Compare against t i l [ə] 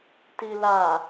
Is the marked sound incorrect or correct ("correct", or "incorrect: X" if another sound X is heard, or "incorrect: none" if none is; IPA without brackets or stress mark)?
incorrect: a